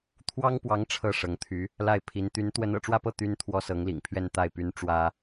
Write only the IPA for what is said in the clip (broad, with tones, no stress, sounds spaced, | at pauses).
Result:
t̪ʰ w ɑ˥ ŋ p w ɑ˧˥ ŋ ʈ͡ʂʰ ɤ˥˩ ʂ ɤ˧˥ ŋ t̪ʰ y˧˥ | l a˥˩ ɪ̯ pʰ i˧˥ n t̪ y˧˥ n t̪ w ə˧˥ n ɤ̰˨˩ ʈ͡ʂ w ä˥˧ p ɤ˥˩ t̪ y˥ n t̪ʰ w ɔ˥ s ɤ˧˥ ŋ l ḭ˨˩ ŋ pʰ ɥ ɛ˥˧ n t̪ a˥˩ ɪ̯ p y˥ n ʈ͡ʂ w ä˥